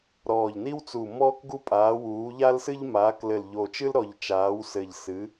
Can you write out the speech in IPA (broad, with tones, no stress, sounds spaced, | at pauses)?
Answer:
ɾ ɔː˨˩ ʎ n i˦ w t͡s u˨˩ m ɔː˦ k ɡ u˦ pʼ aː˩˧ w uː˩˧ ʎ a˦ l s ɨ˦ ʎ m aː˩˧ k l ɘ˨˩ l ʎ o˨˩ t͡ʃ ɨ˦ l ɾ ɔ˨˩ ʎ t͡ʃ aː˩˧ w s ɘ˨˩ ʎ s ɨ˩˧